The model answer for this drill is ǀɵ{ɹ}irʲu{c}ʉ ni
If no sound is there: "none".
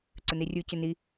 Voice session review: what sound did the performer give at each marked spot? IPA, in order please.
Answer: n, c

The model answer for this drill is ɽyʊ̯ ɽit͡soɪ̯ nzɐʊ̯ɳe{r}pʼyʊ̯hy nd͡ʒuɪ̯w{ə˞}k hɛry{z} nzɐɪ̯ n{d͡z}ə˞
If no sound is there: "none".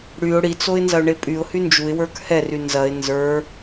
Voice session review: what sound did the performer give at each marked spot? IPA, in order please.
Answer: none, ə˞, none, z

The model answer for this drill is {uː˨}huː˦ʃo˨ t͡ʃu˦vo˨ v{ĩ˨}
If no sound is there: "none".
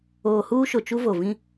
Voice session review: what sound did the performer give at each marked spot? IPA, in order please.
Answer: oː˨, ĩ˦

